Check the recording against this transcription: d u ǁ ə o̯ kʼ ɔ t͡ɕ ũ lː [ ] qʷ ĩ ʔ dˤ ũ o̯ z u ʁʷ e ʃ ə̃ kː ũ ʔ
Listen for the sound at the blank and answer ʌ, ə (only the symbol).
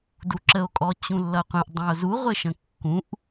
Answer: ʌ